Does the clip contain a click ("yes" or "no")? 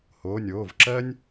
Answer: yes